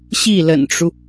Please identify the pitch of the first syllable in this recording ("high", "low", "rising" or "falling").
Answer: falling